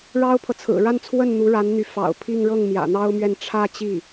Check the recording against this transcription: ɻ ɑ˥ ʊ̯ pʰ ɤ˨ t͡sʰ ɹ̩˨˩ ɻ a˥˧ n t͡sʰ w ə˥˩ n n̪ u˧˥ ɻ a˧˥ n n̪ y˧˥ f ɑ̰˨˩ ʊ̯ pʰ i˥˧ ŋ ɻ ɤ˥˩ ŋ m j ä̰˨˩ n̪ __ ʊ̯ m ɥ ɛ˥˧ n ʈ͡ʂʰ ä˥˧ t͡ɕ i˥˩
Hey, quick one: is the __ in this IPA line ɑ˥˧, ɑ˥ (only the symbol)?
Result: ɑ˥